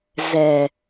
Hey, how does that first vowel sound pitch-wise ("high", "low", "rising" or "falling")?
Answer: low